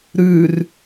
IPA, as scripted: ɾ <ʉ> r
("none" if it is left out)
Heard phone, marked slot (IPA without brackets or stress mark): ʉ